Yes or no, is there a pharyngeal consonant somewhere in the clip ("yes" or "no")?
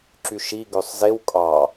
no